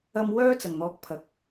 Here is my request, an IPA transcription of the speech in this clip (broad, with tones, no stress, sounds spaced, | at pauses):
ɐ˧ m w œː˥ t͡s ɐ˨˩ ŋ n̪ ɔː˧ k̚ pʰ ɐ˨ k̚